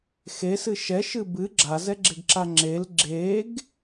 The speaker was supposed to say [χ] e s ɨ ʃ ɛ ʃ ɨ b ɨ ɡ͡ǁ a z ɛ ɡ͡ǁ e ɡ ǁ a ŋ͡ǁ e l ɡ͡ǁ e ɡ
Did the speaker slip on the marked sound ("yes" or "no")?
yes